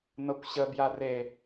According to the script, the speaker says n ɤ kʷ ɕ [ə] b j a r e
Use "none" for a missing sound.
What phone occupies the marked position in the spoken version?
ə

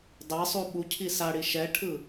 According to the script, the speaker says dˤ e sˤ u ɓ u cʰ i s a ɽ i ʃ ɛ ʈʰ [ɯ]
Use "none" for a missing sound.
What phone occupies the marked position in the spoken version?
ɯ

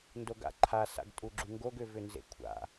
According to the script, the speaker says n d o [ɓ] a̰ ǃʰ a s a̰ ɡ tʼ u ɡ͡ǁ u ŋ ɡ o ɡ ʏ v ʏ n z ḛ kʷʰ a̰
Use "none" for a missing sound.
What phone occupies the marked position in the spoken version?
ɡ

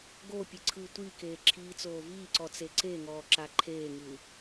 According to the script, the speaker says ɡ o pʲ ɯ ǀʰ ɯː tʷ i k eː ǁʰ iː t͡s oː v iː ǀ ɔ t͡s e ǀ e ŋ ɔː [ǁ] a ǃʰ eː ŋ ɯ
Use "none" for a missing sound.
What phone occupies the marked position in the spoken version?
ǁ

